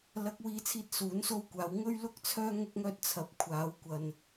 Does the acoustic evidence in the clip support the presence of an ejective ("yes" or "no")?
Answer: no